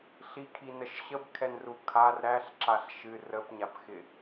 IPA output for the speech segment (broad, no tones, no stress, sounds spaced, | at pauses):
ɬ i kʰ i n ə ʃ ɕ ə b kʰ ɛ n r u kʰ a r ɾ æ ɬ ǁ a ɬ ʃ ɨ r ə p ɲ a p x ɪ